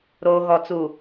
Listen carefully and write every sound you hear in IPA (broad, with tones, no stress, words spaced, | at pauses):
ɾoː˨ɣɔ˨ t͡su˨